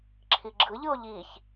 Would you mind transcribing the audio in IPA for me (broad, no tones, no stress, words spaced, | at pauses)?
ǁʰiɡ͡ǁɯʎɯo̯ ʎiç